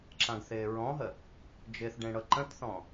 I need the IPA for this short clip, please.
ǁ ã ɡ θ ɪː ɹ ɔ̃ ɦ ə | d͡ʒ ɪ θ ɖ ẽ ɽ ɤ ǃ ə̃ t θ ɔ̃

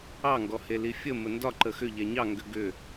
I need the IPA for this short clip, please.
ɑ ŋ ɡ ɔ h e l i fʲ ə m ə n d ɒ ǃ ə x ʏ ʎ ɛ ɲ ɑ ŋ ɡ ʏ ɡ ʏ

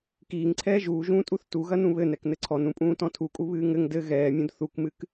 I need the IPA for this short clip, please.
k iː ŋ ǀʰ ɛː ʒ uː ʒ ũː tʼ u θ t u ɣ ɐ n ũ β ɘ n ɛ k n ɘ ǀʰ ɔ n ũ pʼ ũː t ɔ̃ tʰ u kʼ u β ɨː ŋ ɘ ŋ d ɘ ɣ ɛː mʲ ũ d θ u k m ɨ k

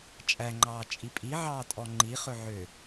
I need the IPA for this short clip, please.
t͡ʃʼ æ ŋ͡ǃ ɑː t͡ʃʼ i pʼ i ʕ ɑː tʼ ɔ ŋ͡ǃ i χ ɵ ʕ ø

